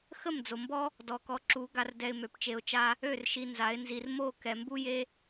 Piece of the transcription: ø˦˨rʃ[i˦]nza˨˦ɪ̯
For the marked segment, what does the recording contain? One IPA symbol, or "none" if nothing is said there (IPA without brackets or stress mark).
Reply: i˧